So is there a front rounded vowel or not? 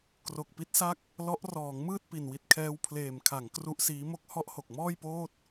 no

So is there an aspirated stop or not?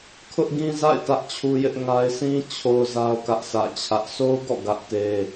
yes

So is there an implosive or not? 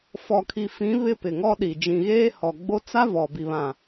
yes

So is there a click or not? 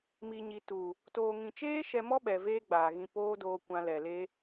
no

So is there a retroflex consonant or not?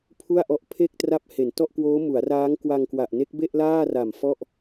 no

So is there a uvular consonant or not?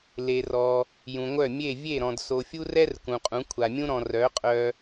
yes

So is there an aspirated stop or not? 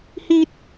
no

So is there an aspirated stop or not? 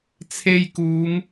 yes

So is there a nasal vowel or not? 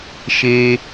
no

